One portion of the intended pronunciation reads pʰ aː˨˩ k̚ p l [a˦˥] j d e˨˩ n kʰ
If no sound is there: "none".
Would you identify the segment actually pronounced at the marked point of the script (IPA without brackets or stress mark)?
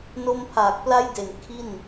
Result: a˦˥